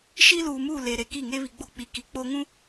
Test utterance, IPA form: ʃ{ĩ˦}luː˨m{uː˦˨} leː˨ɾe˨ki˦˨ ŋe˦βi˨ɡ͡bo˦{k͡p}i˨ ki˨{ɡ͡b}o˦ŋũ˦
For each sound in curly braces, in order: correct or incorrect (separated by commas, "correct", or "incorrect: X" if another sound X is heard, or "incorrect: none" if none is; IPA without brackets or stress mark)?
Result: incorrect: i˦, correct, correct, incorrect: k͡p